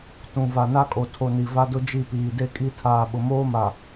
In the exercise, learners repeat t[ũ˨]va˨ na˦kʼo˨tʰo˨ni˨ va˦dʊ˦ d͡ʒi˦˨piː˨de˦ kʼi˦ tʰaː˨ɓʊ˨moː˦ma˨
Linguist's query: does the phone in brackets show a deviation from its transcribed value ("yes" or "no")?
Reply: no